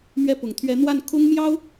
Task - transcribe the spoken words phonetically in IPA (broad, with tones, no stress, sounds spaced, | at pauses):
m ɥ ɛ˥ p ʊ˨˩ ŋ t̪ʰ ɥ ɛ˧˥ n̪ w a˥˩ n kʰ ʊ˥ ŋ m j ɑ˥ ʊ̯